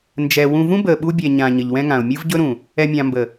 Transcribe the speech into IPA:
n d͡ʒ ɛ˨ w ũ˨ v ũ˦ b əː˨ ɓ u˦ bʲ ɛ˨ ɲ ã˨ ɲ ə˨ ʎ w ɛ̃˦ ŋ ã˨ ʊ̯ mʲ ɯ˦ v ɟ ɵ˦ ɾ ũ˨ | ɛ˨ mʲ ã˨ m b ə˨

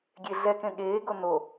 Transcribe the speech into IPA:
ɡʲ e ɮ ɛ k ẽ ɠ eː ɡ o n o

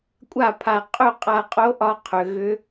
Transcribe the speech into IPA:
kʷʼ a˥˩ pʰ a˧ qʼ ɵ˥˩ qʼ a˧ qʼ o˧˥ ʔ ɒ˧ qʰ ʏ˩˧ ɣ ʏ˧˥

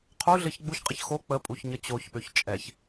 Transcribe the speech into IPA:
qʰ u ɮ ɘ ç ɡ͡b u ç qʼ ə ç x o k͡p ə pʼ u ç ɲ ə t͡ɕ o ç ɓ ø ç t͡ʃʼ ɛ ç

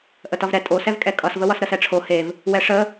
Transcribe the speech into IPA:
ʔ ə t ʌ v ɾ ɛ tʼ o s ɛ v kʼ ɛ kʼ ʌ s v ə w ʌ s ɾ ə s ɛ ʈ͡ʂʰ o h e v | w ɛ ʂ ə

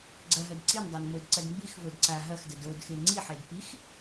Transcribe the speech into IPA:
ɡ͡ǀ ɐ ɦ ɐ d ǀ i n dˤ a n m o d ǀ ɐ d m b i x v o d ǀ a ɦ ɐ x d ə d o d x e ŋ͡ǀ i ħ e d p i x

